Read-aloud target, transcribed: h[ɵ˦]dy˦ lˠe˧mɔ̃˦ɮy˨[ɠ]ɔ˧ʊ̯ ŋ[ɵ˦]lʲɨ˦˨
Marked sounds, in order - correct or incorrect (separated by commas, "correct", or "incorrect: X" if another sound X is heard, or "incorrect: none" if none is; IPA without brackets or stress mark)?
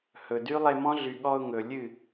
incorrect: ɵ˨, correct, incorrect: ɵ˨